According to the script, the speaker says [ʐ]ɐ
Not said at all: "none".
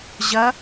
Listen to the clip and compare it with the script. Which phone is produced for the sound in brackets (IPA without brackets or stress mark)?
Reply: ʑ